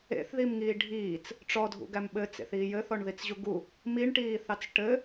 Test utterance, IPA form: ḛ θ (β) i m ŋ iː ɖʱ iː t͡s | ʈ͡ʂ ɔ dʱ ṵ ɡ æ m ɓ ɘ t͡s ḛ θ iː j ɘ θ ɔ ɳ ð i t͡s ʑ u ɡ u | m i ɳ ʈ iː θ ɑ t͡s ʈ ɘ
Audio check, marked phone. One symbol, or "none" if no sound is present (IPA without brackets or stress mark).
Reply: ð